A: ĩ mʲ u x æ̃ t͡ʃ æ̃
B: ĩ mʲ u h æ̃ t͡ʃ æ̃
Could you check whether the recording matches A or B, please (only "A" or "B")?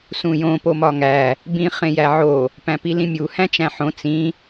B